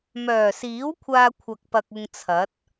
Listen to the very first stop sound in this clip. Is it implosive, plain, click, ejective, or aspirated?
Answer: aspirated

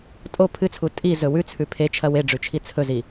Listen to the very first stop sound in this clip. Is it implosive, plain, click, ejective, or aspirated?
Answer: ejective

